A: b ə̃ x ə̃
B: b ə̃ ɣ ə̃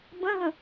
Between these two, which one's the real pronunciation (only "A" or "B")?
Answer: B